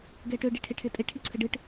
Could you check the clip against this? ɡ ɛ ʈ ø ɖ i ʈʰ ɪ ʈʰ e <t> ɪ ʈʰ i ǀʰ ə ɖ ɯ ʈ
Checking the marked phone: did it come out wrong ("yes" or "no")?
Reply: yes